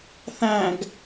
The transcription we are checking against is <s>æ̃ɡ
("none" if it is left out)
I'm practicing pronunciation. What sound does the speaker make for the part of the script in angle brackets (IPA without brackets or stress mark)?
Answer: θ